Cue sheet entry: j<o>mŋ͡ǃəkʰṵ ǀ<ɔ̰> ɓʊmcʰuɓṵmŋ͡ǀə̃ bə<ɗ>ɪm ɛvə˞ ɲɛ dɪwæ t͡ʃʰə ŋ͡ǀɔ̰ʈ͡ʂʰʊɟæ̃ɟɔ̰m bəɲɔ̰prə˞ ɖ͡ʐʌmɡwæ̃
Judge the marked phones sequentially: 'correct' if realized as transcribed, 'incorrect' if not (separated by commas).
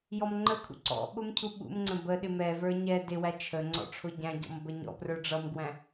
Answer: incorrect, correct, correct